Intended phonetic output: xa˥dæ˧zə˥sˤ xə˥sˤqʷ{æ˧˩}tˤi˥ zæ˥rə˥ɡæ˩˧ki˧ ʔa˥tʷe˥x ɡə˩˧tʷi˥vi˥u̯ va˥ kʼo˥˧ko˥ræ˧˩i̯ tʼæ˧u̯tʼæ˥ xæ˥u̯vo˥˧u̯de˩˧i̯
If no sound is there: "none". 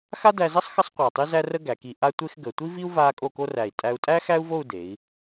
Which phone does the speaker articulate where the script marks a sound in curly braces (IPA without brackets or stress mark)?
a˧˩